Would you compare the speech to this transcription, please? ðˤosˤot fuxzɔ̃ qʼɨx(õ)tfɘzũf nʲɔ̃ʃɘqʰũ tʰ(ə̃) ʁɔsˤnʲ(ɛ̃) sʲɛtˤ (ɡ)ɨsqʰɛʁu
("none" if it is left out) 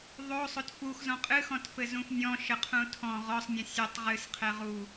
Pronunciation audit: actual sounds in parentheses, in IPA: ɔ̃, ɔ̃, ɛ̃, ʁ

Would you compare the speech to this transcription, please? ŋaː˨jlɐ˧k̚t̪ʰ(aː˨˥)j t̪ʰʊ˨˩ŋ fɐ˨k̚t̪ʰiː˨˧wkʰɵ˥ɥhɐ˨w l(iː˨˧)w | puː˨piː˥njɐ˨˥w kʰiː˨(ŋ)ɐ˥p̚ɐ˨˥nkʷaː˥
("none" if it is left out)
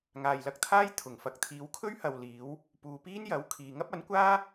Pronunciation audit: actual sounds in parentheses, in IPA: aː˥, iː˨˧, ŋ

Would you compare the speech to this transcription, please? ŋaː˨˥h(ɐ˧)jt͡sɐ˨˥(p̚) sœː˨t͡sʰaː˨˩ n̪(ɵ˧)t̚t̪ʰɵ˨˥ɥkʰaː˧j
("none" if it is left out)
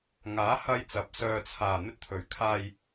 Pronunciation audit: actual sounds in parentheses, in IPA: ɐ˧, p̚, ɵ˧

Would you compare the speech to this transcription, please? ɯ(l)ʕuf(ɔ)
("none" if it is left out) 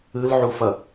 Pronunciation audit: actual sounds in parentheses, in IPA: l, ʌ

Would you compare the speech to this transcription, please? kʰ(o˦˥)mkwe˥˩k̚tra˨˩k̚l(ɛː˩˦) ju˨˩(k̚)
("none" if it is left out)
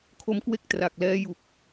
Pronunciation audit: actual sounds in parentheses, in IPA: o˦˥, ɛː˦˥, k̚

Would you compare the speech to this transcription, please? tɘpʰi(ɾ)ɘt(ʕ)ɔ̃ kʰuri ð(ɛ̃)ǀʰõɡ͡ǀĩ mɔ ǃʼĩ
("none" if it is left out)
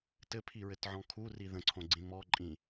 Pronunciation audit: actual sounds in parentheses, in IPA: ɹ, ʕ, ə̃

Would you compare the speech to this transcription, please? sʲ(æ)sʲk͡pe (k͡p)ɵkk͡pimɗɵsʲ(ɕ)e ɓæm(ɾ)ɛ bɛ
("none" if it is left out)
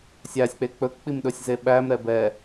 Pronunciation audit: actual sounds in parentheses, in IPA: æ, k͡p, z, ɾ

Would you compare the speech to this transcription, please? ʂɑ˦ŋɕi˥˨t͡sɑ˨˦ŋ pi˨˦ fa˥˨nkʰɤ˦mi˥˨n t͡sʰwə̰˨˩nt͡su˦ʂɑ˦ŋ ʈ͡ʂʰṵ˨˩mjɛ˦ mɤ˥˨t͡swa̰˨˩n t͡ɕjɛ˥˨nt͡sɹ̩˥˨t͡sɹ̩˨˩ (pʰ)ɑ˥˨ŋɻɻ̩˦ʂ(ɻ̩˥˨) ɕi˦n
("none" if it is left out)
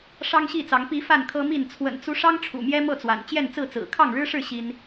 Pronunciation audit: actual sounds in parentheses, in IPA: kʰ, ɻ̩˥˨

